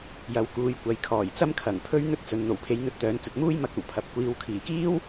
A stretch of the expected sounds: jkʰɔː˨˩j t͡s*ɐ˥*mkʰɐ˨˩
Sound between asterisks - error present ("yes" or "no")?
no